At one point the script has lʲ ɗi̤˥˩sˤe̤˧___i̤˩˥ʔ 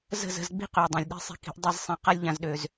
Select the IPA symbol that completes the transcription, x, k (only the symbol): k